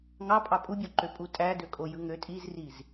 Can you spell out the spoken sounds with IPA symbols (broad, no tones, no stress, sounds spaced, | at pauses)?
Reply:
ŋ ɑ pʼ ɑ pʼ u bʲ o ǃ ø pʼ u tʼ æ d ø kʼ o j ɯ ŋ ø tʼ i z r i z